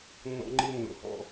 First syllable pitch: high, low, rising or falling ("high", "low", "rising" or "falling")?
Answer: high